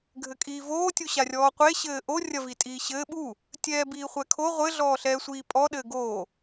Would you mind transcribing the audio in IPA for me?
ɡʱɘkʼiːvoː tʲuɕarʲɔːqʷe ɕɘːʔo rʲɐvitʼiːɕɘː ɓu | tʲɛːbiːχʷɛkʰo ʁʷɘ ɮɔːɬɛːsʷiːpʼɔ ɗɘːɡoː

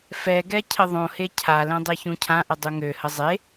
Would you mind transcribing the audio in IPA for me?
fɛɡɛ cʰəðˤõhe cʰalɛ̃ dˤeçũcʰãʔə dˤuŋøhə zˤe

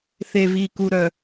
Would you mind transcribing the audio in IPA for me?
θe˨viː˨ku˨ɾœ˨

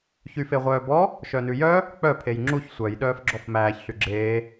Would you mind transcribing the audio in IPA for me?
çyfeʁʷœːbɔ | ʃœnʉjœ | k͡pœ pʰejŋ͡ǁuç sʷœj ɗœːfɡ͡ǁɔfmæːç ɬyɡ͡ǁeː

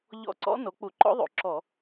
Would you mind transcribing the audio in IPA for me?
ʎɔ̰˦˨ ǀɔ̰˦˥no˩˥ k͡pu˧˩˧ǃɔ̰˦˥ðˤo̰˩˥ ǁɔ˧˩˧

